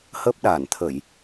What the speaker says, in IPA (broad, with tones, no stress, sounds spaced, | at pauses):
h ə˦˥ p̚ ɗ a˧˩ n t̪ʰ ə˧˩˨ j